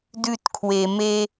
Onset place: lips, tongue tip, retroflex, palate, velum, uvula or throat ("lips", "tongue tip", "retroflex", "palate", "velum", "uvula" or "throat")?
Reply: tongue tip